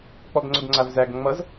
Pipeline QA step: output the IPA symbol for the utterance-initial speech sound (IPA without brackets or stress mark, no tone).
k͡p